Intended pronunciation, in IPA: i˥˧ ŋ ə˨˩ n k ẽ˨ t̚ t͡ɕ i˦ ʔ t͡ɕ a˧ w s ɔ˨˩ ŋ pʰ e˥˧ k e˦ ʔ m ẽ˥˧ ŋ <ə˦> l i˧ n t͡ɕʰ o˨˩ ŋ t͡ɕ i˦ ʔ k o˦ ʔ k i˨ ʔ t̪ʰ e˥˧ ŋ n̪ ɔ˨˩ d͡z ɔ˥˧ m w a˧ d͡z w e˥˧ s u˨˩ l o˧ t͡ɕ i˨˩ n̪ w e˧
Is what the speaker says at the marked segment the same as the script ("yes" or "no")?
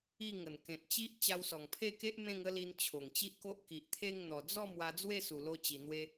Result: yes